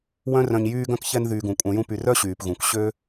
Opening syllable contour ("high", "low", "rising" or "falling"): high